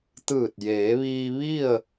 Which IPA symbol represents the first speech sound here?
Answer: t̪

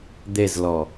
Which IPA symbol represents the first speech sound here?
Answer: d̪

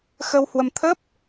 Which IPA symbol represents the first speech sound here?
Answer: x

